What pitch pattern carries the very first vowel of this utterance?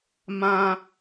high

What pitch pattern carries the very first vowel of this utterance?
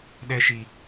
high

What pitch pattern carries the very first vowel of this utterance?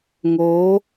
rising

